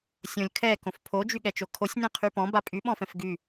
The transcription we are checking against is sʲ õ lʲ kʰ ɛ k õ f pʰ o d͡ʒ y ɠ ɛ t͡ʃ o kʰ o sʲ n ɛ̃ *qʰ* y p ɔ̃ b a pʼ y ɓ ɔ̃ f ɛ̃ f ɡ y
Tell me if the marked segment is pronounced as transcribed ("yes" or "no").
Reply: yes